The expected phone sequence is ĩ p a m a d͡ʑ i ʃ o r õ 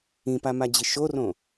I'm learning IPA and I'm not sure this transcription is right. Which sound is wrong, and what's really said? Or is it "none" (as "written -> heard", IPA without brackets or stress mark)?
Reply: none